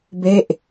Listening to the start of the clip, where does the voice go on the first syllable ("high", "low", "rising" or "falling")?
falling